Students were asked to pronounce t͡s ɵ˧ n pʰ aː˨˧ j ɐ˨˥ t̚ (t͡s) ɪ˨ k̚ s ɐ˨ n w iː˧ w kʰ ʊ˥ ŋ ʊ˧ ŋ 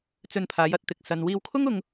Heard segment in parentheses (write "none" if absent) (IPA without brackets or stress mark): t̪